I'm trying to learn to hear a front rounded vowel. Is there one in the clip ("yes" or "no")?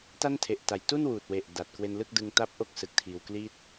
no